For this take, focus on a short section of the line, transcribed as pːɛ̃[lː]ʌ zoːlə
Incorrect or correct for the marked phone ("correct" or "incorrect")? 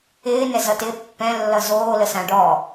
correct